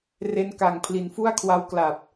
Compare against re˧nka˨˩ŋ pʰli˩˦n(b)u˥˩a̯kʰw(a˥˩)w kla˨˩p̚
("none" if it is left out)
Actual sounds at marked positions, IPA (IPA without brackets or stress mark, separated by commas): f, a˦˥